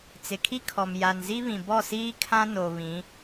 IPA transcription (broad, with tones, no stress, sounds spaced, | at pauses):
t͡s ɪ˨ kʰ i˦ kʰ ɔ˨ m j a˨ n z i˦ β ĩ˨ b ɔ˦˨ s iː˦ kʰ ã˦ n o˨ β ĩ˨˦